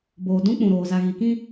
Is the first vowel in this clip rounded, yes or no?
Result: yes